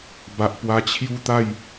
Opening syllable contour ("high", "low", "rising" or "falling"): low